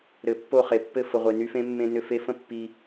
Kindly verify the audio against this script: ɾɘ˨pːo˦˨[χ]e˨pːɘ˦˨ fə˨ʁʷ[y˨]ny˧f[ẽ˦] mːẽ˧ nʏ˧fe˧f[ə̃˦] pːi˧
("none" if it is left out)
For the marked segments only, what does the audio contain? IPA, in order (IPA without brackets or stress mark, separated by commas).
χ, e˨, ẽ˦, ə̃˦